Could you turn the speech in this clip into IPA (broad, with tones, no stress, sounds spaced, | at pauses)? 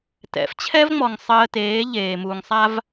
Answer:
t ɛ̰˨ f t͡ɕʰ ɛ˦ v ŋ͡m ɔ˨ ŋ sˤ əː˧ t eː˨˦ ʎ eː˨ m uː˨ ŋ sˤ a˦ v